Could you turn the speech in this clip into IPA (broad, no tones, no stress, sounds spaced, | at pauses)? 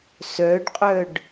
s œ ɖ qʼ œ ɖ